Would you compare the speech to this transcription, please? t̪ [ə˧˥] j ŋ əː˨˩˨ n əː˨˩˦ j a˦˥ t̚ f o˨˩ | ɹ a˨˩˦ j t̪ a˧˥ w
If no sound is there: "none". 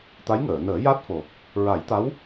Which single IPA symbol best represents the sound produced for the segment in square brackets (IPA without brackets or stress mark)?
a˧˥